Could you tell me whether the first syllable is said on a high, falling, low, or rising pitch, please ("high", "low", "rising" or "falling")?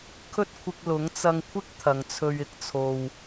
high